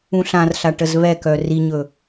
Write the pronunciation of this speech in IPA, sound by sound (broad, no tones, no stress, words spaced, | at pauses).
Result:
ũɬãrɬa ʈəzβɛkœ riɲɵ